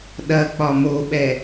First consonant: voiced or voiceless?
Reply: voiced